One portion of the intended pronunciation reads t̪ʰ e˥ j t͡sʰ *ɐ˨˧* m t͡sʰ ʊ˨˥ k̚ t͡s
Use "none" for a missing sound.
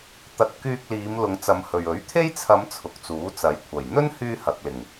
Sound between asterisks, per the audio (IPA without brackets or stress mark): ɐ˨˧